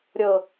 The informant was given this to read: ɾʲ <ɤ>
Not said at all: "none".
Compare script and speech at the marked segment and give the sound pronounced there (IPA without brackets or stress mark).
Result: ɤ